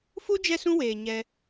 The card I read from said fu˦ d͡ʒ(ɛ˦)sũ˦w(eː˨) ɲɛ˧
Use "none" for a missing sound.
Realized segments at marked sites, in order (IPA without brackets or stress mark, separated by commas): ɛ˦, eː˨